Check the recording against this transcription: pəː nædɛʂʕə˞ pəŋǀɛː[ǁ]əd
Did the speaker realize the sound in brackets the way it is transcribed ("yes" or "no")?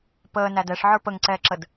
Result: yes